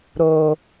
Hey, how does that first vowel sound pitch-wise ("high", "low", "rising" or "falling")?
low